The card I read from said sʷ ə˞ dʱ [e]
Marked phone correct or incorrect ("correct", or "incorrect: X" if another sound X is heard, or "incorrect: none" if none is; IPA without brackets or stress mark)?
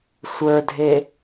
correct